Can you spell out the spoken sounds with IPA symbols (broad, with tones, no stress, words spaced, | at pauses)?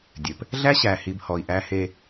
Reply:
dʲɘ˨p | ɮæ˦ɕæ˨hi˨b hɔ˨i̯ʔæ˦he˦